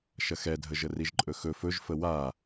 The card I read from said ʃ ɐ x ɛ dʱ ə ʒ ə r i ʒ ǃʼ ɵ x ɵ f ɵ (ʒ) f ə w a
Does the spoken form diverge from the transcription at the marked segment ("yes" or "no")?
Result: no